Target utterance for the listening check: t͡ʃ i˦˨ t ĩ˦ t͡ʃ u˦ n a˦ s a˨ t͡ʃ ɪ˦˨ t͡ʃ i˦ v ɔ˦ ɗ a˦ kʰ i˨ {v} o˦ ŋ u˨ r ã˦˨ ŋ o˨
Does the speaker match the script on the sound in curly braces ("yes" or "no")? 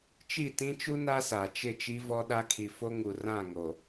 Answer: no